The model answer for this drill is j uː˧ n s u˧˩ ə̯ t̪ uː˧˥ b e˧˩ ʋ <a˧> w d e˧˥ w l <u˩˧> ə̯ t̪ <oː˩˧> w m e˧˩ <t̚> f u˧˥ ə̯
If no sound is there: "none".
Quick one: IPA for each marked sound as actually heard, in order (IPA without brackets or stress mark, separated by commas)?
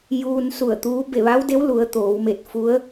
a˧˥, u˩˧, oː˩˧, t̚